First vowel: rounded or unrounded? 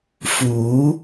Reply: rounded